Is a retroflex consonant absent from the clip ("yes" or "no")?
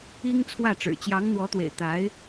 no